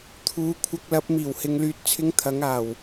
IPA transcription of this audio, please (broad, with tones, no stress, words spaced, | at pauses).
t̪ʰuː˨˧kʷʰɐ˧k̚lɐ˨˥p̚ miː˨˩whɪ˨ŋ lyː˨t̚t͡sʰɪ˨˧ŋ t̪ʰɐ˨˥ŋaː˨˩w